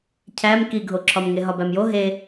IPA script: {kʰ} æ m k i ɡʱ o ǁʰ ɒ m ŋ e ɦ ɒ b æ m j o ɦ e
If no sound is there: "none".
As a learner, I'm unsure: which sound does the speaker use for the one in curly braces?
cʰ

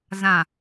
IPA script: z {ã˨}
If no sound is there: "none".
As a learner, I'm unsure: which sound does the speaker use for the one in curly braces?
ã˨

